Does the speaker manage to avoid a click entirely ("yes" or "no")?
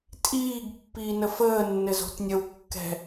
yes